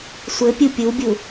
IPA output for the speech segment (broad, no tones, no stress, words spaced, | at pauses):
sʷɘ pʲupʲubʲu